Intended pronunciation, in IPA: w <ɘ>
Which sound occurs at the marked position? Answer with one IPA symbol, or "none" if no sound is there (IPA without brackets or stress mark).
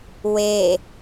e